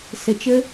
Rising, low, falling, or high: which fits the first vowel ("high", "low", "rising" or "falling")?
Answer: low